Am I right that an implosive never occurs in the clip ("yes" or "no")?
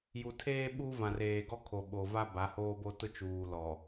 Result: no